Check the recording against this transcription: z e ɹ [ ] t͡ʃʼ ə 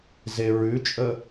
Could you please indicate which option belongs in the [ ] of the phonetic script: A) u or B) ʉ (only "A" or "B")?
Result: B